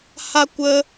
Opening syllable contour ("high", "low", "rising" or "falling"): high